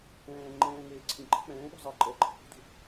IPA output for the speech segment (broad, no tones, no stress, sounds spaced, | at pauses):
ɛ̃ː ŋ͡ǃ ɛ̃ː ŋ eː ǀʰ ĩ ǃ ɛ̤ k͡p ɛ̃ː ɗ ṳ zˤ ɪː ǃʼ ɜ ǃʼ ɛ̤ ʔ ṳ d ṳ